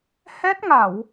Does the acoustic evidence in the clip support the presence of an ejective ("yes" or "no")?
no